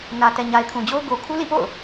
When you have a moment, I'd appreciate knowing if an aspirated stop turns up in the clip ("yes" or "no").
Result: yes